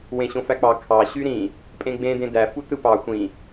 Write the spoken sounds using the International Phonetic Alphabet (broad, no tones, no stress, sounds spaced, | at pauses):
w ẽ ɕ õ f æ k͡p ɑ kʰ ɑ ɕ y ɾ ĩ | pʼ ẽ ɡ͡b ẽ d ẽ d æ f u t ɯ p ɑ xʷ ĩ